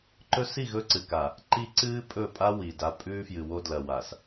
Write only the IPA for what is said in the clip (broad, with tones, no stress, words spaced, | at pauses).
ǃɵ˦ si˦˨ ɣɵ˦ǀɨ˨ka˨ | ǃi˦ǀɨː˦pʼɵ˦˨ pʼa˦ wi˨da˦ pʼʉː˦fjɨ˨wo˦dlɐ˨ wa˨s